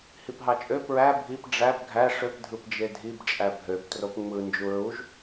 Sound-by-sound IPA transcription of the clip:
h i p ɦ ɑ t͡ʃʼ ø p ɹ æ bʱ i p ɖ͡ʐ æ b ɡʱ æ ʂ ø p dʱ ɯ p d͡ʒ e dʱ i b t͡ʃʼ æ bʱ ø p t r o p ŋ͡m ɯ n d͡ʒ u ɹ u ʒ

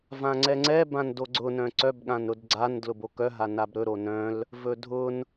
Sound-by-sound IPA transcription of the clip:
v ã ŋ͡ǀ ɛ ŋ͡ǀ ɛ b ã n d o ɡ͡ǀ ʊ n œ̃ ǀ œ b ɠ ã n ɾ ʊ d ɡ͡ǀ a n d l ʊ b o k œ ɦ a n a b ɾ ɵ ɾ o n œ̃ l | v ɵ dʱ ʊ n

